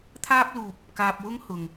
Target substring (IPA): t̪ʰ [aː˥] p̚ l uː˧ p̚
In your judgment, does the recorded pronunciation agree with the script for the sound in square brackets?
yes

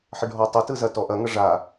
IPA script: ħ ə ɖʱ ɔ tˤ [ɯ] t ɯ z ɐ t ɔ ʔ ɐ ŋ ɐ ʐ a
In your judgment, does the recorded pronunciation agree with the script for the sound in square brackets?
yes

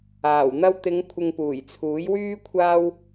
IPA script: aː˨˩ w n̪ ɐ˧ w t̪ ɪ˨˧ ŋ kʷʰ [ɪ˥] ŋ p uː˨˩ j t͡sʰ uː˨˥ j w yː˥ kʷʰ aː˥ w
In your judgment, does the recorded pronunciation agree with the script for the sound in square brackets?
no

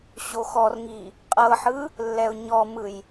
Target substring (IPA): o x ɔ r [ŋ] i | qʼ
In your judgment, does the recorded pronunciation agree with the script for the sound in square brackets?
yes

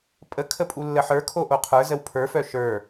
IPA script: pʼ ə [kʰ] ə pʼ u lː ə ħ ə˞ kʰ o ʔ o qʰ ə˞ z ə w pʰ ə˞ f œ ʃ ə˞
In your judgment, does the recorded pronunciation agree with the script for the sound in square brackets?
yes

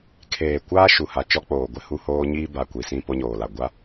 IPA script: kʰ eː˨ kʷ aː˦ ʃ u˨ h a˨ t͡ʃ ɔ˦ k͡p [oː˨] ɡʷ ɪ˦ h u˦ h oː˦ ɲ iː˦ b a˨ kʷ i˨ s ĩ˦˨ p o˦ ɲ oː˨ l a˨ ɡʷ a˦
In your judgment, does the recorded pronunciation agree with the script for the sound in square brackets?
yes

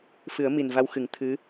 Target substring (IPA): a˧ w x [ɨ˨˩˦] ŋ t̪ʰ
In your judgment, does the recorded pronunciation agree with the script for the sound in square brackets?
yes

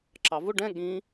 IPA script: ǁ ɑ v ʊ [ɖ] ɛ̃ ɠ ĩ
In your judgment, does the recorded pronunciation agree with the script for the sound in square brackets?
yes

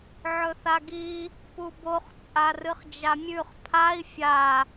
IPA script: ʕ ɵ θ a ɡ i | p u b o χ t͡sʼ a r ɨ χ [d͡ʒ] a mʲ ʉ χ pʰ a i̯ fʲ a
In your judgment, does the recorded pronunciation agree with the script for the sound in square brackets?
yes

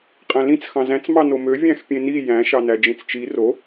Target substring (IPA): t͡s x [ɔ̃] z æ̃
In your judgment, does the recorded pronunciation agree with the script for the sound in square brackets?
no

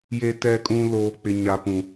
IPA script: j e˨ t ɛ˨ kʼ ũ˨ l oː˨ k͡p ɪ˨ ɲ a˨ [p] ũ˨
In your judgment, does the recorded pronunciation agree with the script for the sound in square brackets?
yes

